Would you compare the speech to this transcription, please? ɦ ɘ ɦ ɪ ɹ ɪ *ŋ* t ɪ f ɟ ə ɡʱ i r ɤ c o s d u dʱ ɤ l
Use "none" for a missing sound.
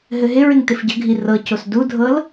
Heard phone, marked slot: ŋ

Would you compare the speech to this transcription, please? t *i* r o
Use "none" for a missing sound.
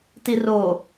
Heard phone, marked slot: i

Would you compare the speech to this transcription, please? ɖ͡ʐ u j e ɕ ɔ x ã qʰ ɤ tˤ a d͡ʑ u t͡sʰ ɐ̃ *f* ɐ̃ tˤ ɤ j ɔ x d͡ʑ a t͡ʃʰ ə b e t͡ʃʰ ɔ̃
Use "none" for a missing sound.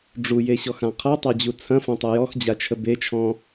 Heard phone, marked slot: f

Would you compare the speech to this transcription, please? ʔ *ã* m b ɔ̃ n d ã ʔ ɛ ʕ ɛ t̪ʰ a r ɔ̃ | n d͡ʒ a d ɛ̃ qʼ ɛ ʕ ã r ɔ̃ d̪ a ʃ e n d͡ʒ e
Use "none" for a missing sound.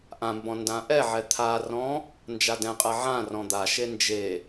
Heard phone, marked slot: ã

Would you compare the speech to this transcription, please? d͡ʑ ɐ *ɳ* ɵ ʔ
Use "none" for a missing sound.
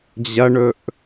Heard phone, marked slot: ɳ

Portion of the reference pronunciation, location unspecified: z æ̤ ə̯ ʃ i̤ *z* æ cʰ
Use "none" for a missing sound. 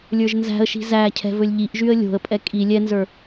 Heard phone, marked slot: z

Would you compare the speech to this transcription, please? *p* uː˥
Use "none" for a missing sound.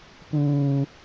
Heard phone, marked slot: p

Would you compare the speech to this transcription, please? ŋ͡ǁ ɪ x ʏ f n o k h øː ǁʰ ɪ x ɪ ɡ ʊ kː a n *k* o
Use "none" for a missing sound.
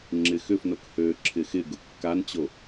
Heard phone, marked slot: t͡ɕ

